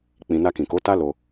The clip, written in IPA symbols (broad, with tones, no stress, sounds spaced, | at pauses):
k͡p ĩ˧ n a˧ k ĩ˨ k o˨˦ t a˦ l o˧